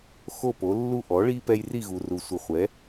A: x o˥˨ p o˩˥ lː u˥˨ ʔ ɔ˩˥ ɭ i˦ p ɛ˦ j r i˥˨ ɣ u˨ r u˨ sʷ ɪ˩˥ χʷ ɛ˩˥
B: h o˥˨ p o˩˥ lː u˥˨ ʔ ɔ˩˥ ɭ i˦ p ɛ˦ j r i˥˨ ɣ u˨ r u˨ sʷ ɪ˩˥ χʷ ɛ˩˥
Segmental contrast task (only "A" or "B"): A